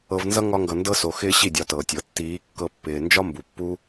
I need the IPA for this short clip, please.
ɤ˧ v n z ʌ˦ ŋ ɒ˦ ŋ ɡ ʌ˧ n d ɤ˧ s o˨ x ɪː˦ ɕ i˦˨ dʲ ɒ˨˦ t ɤː˨ tʲ ɤ˨ tː iː˨˦ kː ɤ˧ pː ɪː˨ n d͡ʒ ɒ˦ m b u˨ pː u˦

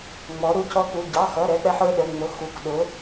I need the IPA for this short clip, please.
ŋ͡m ɔ˩˥ ɾ u˩˧˩ c ɔ˦ k u˩˧˩ ɟ ɑ˩˧˩ x ʌ˩˧˩ ɾ ɛ˦ k͡p ɛ˦ ħ ə˞˩˧˩ ɗ ə˩˧˩ ŋ͡m ʊ˩˧˩ x u˩˧˩ k ɗ ʊ˩˥

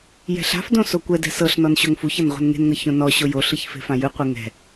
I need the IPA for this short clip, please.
j ɛ̤ ɬ a̤ f d õ s o kʷ ɛ d ɛ̤ s ɤ ɬ n ɔ n ɕ o ŋ f u ç ɤ n ʁʷ ɛ̤ n ŋ e̤ n ŋ ɤ ç õ n ɔ ɕ o j o ɬ ɯ ç f e̤ f ã j ɯ qʷ e ŋ ɛ̤

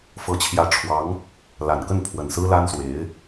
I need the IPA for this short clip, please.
f ɤ˧˥ t͡ɕʰ j ä˧˥ ʈ͡ʂʰ w ɑ˧˥ ŋ | l a˨˩ n k ə˥˩ n pʰ w ə˨˩ n s ɹ̩˥ l a˥ n s w e˧˥ ɪ̯

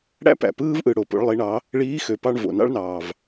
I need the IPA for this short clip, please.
ɽ æ̰˥ p æ̰˩ p ɯː˥ v ʔ ɯ˩ ɽ o˩ p o̰˩˧ ɭ lˠ i˩˧ ɳ ɑ˩˧ | ɭ iː˧˥ x ø˩˧ p ɑ˧ ɳ v o̰˩ n ɑ̰˥ ɭ n ɑː˩ v

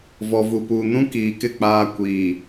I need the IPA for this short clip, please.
v ɔ˨ v u˨ p uː˨ n ũ˦ k iː˨ k ɪ˦˨ k͡p aː˦ kʷ iː˨

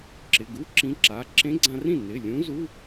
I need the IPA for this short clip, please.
ǁ ɪ˩˧˩ ɡ u˧˥˧ ǁ ĩ˧˥ ǁ a˩˧˩ ǁ ẽ˧˥ ɡ͡ǀ ã˧ r ĩ˥˩ n ɪ˩˧˩ lʲ ũ˧˥ z u˧˥˧

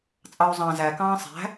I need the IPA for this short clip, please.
t͡sʼ ɑ u̯ zˤ ɑ̃ z æ k ɑ̃ː sˤ æ̤

